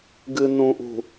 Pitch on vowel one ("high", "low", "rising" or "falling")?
low